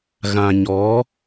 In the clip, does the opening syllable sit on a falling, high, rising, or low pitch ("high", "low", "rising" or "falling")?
low